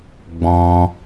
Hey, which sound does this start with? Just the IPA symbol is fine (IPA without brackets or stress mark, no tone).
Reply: ɡ͡b